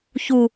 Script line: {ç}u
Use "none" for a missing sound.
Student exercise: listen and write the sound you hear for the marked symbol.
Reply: ç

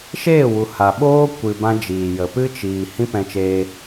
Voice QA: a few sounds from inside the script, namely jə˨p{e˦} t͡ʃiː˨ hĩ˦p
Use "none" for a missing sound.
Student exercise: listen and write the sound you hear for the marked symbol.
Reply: ɨ˦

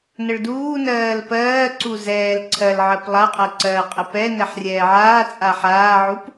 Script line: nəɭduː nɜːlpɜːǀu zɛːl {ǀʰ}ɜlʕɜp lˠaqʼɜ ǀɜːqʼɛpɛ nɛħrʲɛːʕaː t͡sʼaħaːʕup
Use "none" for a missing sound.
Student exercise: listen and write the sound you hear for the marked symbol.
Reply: ǀʰ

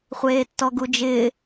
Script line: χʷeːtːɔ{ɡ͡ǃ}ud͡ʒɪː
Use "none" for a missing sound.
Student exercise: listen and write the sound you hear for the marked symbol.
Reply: ɡ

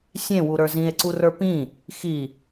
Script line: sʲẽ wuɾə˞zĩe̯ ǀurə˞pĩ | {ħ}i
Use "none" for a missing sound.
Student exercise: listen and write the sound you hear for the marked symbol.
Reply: x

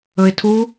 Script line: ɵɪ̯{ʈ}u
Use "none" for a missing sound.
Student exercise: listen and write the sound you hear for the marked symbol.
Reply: tʰ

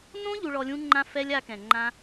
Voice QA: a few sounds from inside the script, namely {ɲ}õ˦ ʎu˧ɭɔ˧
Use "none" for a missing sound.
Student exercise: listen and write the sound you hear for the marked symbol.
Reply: n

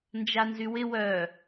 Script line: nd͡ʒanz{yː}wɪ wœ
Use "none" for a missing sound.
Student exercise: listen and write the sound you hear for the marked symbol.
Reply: y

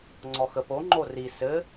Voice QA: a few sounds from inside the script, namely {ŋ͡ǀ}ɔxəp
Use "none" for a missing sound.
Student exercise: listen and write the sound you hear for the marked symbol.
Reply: ŋ͡ǀ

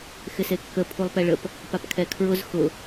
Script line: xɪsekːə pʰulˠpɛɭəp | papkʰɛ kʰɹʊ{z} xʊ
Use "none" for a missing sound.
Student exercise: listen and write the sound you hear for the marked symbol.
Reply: z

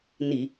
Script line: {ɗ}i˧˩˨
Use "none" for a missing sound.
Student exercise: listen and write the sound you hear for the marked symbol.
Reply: n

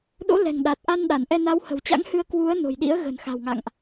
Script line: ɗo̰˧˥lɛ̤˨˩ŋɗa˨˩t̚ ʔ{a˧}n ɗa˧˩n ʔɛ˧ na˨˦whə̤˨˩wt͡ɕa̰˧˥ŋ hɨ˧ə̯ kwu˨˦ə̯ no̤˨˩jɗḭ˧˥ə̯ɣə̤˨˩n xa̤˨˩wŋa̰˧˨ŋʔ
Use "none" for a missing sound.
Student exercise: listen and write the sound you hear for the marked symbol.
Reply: a˧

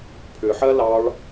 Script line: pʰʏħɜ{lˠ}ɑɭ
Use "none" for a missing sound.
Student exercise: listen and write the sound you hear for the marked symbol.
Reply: l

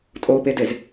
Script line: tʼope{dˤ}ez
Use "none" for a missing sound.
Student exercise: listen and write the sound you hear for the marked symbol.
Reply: d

